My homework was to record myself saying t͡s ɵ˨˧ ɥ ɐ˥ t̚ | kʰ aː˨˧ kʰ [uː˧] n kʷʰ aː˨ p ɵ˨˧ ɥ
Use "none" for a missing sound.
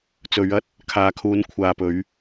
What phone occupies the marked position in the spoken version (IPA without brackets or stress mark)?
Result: uː˨˧